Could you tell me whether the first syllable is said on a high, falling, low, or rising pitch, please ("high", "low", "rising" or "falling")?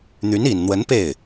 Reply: rising